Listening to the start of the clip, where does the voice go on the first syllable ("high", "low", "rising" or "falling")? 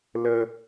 high